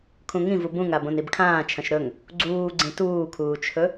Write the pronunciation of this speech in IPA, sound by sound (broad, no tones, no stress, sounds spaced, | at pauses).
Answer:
kʰ ũ ŋ ĩ v u b ũ ŋ a b õ n i b kʰ ãː t͡ʃʰ ɐ̃ ʃ ɾ ɵ ŋ | ɡ͡ǀ uː ɡ͡ǀ ĩ t uː kʰ uː t͡ʃʰ ɵ